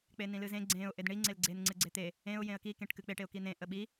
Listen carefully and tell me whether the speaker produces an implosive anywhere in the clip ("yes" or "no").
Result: yes